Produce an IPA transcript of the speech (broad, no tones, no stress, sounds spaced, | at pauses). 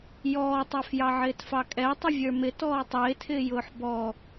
j ɔː tˤ æ f j ɑ ʕ ɪː t f ɑ kʼ ɛ tˤ ə vʲ ə˞ m ɪ t ɔː tˤ ɪː tʰ ɪː j ʊː ħ b ɔ